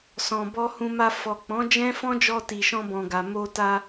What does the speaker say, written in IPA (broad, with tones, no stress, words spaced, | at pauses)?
sɔ̃˨bɔ˧hũ˧ma˧ fɔ˨ k͡pɔ̃˨˦d͡ʒɛ̃˦fɔ̃˦ d͡ʒɔ˧ti˨ʃɔ̃˧ bɔ̃˨ ɡa˨ mo˧ta˧